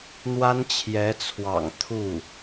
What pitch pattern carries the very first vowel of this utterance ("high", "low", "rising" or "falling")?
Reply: high